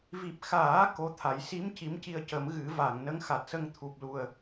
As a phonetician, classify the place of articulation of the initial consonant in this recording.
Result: labial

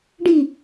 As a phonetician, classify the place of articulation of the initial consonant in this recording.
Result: retroflex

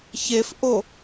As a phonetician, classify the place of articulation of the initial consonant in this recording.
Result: palatal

